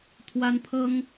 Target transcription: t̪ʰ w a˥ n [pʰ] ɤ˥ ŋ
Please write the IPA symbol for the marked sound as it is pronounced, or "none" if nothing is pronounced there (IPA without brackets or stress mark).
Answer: pʰ